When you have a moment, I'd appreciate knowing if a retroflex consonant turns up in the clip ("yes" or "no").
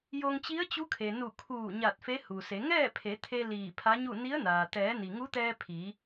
no